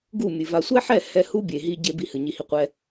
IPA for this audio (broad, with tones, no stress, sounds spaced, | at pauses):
ɡ u˦˨ mʲ ɨ˨ v a˨ sʷ ɛ˦ ħ ɛ˦˨ h ɛ˦ h u˦ bʲ e˨ ɦ i˧ ɟ e˧ b i˦ h ɨ˨ ɲ i˧ h i˦ qʷ ɛ˦